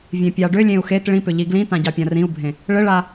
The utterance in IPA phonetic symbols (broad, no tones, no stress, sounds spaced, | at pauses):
vʲ ẽ pʲ ɑ ɖ ʏ lʲ ẽ u̯ x e t ɭ ĩ p ʏ ʎ i ɡ l ĩ t ã ɟ ɑ pʲ ã r ĩ u̯ bʱ ẽ | ɭ ɘ ɭ a